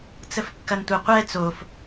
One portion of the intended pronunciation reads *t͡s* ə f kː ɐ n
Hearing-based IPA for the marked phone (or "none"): t͡s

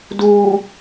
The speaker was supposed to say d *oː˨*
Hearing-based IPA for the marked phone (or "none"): uː˨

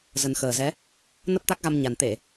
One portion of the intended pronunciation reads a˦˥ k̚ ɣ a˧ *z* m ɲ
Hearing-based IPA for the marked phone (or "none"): none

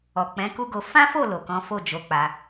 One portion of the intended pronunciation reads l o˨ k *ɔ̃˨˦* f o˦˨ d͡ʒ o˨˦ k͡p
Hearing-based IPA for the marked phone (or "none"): ɔ̃˨˦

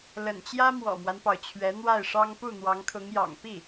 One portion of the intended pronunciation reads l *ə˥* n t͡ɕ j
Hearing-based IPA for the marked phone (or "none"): ə̰˨˩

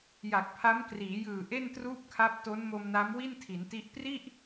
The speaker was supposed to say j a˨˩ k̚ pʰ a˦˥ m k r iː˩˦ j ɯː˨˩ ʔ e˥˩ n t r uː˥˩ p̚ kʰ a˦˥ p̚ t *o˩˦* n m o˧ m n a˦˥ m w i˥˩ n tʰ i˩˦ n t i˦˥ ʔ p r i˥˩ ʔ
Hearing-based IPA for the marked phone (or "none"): o˦˥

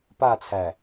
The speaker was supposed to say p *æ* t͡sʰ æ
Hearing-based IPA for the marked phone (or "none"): a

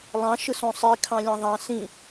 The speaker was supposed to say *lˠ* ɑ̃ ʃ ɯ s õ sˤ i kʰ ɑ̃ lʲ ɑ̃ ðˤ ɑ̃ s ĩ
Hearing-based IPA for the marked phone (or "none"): lˠ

